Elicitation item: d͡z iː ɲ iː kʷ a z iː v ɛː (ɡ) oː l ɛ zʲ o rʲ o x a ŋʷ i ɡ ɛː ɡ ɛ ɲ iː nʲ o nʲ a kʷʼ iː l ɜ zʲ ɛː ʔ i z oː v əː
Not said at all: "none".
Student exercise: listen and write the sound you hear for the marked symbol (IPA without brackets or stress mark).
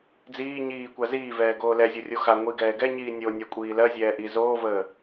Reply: ɡ